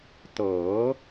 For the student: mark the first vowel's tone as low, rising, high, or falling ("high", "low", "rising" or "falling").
rising